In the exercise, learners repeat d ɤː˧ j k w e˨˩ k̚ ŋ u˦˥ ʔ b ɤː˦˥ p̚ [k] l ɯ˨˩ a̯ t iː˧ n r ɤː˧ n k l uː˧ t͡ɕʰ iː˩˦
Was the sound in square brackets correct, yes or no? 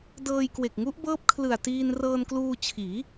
no